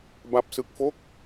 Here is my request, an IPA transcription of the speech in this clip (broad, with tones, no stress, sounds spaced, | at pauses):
b a˥˩ p̚ s ɯ˥˩ k̚ f o˥˩ k̚